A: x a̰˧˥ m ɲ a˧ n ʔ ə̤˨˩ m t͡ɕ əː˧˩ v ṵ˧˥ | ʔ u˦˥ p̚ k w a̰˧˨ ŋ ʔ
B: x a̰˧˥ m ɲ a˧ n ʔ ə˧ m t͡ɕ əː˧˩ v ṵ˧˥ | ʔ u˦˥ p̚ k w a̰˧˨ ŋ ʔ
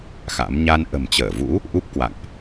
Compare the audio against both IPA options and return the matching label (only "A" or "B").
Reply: A